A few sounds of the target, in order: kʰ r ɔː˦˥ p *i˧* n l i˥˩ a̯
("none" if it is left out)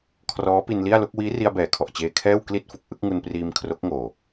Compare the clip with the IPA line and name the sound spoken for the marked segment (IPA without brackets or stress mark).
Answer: i˧